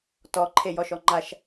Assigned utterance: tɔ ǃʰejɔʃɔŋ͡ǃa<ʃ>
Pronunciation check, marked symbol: correct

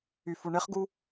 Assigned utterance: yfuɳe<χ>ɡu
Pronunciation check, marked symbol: correct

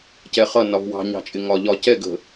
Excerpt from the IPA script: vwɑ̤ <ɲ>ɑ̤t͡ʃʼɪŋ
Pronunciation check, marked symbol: correct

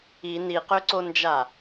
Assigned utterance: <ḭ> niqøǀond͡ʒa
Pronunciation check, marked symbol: incorrect: i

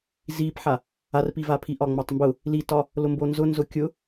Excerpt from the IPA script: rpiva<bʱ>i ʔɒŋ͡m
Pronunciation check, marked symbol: incorrect: pʰ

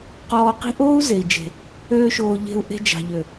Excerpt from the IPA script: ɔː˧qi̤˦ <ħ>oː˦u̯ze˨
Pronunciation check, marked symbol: incorrect: ʔ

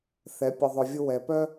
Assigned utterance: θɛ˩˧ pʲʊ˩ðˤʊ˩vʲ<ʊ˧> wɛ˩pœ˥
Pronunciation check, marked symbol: correct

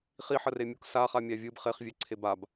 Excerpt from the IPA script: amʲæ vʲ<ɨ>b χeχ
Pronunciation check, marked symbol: correct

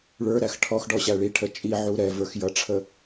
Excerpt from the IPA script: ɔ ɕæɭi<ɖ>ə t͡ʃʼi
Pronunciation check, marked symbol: incorrect: ʈʰ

